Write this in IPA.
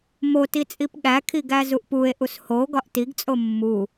moti t͡sʼipɠækʰi ɡæzuʔpue̯ʔus ho ɡɒʔtiɡt͡sʼo mːu

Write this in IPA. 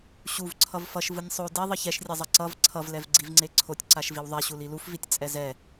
ɕuv ǀʰʌvfʌʃ vɯnʲsˤo di ðˤʌçɛʃrʲezˤʌ ǀʌv ǀʰʌvlɛvɡ͡ǀivŋ͡ǀe ǀʰotʲǀaʃviw ðˤɛɕul ilufvitʲ t͡sʼɛzɛ

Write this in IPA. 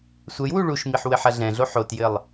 sʷɛjwu ɭuʃmiħ wɘħɐɮɛ̃ɮo ħotjɘlˠ

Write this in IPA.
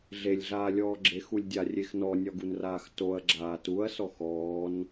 ɮelʲɮaːlʲɔː ɡ͡ǁexulʲdʲarʲex nɔnʲɒɡunraːx toɐ̯ɡ͡ǁaː tuɐ̯sɔ xɔːn

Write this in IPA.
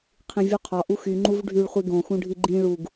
qʰĩvʲuqʰɒ ʔuxy ŋ͡ǃuvɖʱyɭ χʷiɡõ xũɖʱiɡ͡ǃĩ ɭuɡ

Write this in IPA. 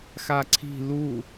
xaǀʰi̤ lu

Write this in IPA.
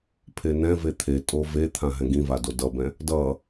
pʰenɛ̃ve t̪ʰetʼo vet̪ʰã ɦɛ̃ɡĩva dodʌbɛ̃ | dʌ

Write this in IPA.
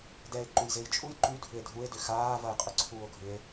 dɛe̯ ǃujzejt͡ʃʼuj ǃy dʱʏe̯dʱue̯ dʏxaːvɐe̯ qʼʏǀʰuːo̯ɡʱʏe̯

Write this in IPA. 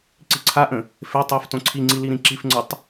ǀiǀʰaʔə̃ | fe tˤə˞f tõǀʰiŋ͡ǀi liɾĩǁifŋ͡ǀə˞tˤ

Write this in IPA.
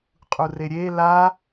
qʼureɾʲe la

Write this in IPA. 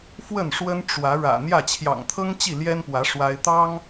fwə˥˨nʂwə˦n ʈ͡ʂwä˨˦ ɻä̰˨˩n̪jä˥˨ t͡ɕʰjɑ̰˨˩ŋt̪ʰɤ˦ŋ t͡ɕi˥˨ljɛ˦npwä˨˦ ʂwa˦ɪ̯ t̪ɑ˦ŋ

